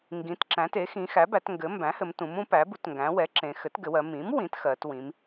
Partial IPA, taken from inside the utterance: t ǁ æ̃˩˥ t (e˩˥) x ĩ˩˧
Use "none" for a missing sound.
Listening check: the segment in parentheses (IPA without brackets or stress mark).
e˩˥